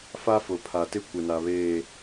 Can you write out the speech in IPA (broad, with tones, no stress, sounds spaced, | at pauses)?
f a˦ f ʊ˨ pʰ a˨ t ɪ˦ kʷ ɪ˨ n a˨ β eː˦˨